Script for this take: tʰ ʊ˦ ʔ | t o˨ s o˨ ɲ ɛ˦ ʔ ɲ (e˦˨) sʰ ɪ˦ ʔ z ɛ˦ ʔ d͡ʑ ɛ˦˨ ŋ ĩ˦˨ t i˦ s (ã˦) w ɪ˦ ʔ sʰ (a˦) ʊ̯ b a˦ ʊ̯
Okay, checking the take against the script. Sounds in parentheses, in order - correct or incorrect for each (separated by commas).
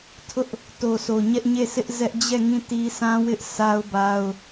correct, correct, correct